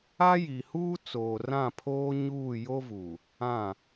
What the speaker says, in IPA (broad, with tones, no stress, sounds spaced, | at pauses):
a˦ j i˨ h uː˦ t͡s oː˨ r ã˦˨ pʰ oː˦ ɲ uː˦˨ j o˦ v u˨ | ã˦˨